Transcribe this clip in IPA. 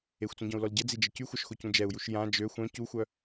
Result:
e xʷ t͡s ũ ɟ ɔ̃ u̯ l ɔ l ɟ ə d͡z i d͡ʒ ə c y xʷ œ ʃ x o c ũ d͡ʒ ɛ u̯ j u ʃ j ã d͡ʒ ø xʷ œ̃ c u xʷ œ

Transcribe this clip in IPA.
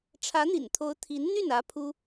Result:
ʈ͡ʂʰ ä˧˥ n̪ ḭ˨˩ n t̪ʰ o˧˥ ʊ̯ t̪ʰ i˧˥ n n̪ y˥˩ n ä˧˥ pʰ u˥

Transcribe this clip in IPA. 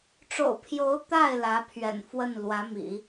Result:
ʈ͡ʂ o̰˨˩ ʊ̯ pʰ j o˧˥ ʊ̯ t̪ a˥˩ ɪ̯ l ä˧˥ pʰ ɥ ɛ̰˨˩ n f w ə˥˩ n l w ä˧˥ m ḭ˨˩˦

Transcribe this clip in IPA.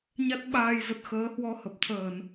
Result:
ɲ a˦˥ t̚ ɓ aː˧ j z ə˨˩ t̚ x əː˨˦ h w ɔ˧ h ə˨˩ p̚ t̪ʰ əː˧˩˨ n

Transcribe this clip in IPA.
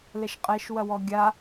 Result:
l ɛ ʃ qʼ ɛ ʃ w ɐ w ɔ ɡʲ a

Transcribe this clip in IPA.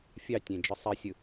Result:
fʲ ɑ tʲ ẽ d͡ʒ ɯ sˤ i sʲ ɯ

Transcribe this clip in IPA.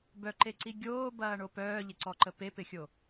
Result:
b œ ǃ e ǀ i ɡʲ oː b ɐː ɳ o p œː ʎ ɪ ǀ ɔ ǃ ə p e p ɪ xʲ o

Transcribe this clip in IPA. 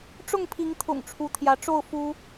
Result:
ʈ͡ʂ ʊ˥˨ ŋ pʰ i˨˦ ŋ t̪ʰ ʊ̰˨˩ ŋ ʈ͡ʂʰ u˨˦ t̪ʰ j ä˨˦ ʈ͡ʂ o˥˨ ʊ̯ f u˦

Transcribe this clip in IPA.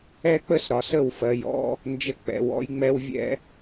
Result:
ɛ˦ k͡p ə˦ s ɾ ɒ˨ s ə˦˨ w f ɜ˨ j ɔ̰˦ | n d͡ʒ ə˦ k͡p ɛ̰˧ w ɔ̰˦ j ŋ͡m ɛ˦ w vʲ ɛ̰˦

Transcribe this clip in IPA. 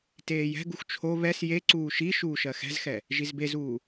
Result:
t eː j ɛ̤ ɡ u x t͡ʃʰ o β ɛ s j e ǀ uː ʃ i ʃ uː ʃ ɜ x ɛ̤ z x ɛ | ʒ i z b e z uː

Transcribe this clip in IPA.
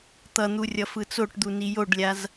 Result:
t̪ ʌ n̪ u rʲ ʌ f ɯ t͡s o ʈ d̪ u n i j o ɖ lʲ a z

